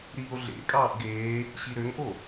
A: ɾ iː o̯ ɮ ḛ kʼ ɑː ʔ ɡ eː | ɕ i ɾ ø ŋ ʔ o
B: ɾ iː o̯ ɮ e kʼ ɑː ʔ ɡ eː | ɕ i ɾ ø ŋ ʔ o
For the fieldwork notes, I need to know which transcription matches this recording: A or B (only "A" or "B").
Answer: A